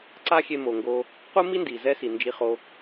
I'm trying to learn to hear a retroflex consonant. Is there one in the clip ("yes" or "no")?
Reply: no